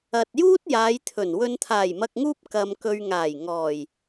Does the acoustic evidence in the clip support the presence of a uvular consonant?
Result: no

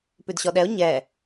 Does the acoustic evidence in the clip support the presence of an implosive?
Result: yes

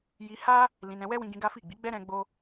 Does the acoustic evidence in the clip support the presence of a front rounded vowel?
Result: no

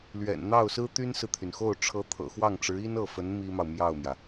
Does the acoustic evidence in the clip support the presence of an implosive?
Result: no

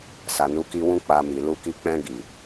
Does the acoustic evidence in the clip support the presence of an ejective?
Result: no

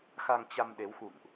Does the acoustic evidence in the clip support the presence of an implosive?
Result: yes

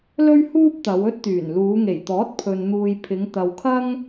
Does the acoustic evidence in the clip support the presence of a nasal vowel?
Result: no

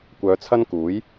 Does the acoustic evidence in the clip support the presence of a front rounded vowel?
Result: yes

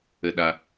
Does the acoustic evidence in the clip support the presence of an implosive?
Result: yes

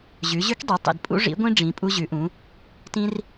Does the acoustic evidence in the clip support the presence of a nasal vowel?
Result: yes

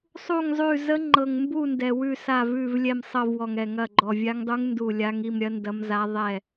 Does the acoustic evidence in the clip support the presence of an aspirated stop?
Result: no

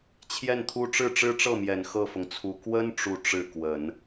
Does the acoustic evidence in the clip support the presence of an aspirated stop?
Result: yes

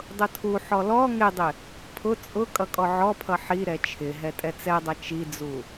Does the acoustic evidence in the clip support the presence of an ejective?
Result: yes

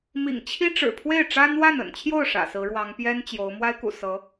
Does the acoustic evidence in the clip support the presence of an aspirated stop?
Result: yes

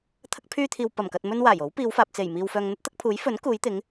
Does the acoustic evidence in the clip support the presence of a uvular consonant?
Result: no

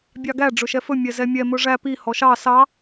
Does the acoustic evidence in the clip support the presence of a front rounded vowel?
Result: no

